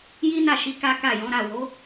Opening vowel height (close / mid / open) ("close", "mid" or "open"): close